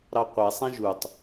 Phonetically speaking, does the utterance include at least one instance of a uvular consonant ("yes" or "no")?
yes